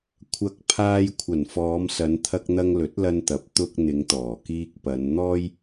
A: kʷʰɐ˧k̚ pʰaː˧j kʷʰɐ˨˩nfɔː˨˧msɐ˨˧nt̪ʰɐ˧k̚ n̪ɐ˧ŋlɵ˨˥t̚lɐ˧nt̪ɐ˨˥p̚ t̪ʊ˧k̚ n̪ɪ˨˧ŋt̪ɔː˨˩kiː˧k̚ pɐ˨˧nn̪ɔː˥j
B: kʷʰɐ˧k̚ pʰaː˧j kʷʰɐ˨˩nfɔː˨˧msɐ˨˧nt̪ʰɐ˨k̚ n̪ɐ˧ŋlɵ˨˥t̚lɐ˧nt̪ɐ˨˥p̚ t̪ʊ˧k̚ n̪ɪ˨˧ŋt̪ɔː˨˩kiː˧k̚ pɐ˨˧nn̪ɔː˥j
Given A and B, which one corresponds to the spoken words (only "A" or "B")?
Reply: A